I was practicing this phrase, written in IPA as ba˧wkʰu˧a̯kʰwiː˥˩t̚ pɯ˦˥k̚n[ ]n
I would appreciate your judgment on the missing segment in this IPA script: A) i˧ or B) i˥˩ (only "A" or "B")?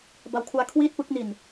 A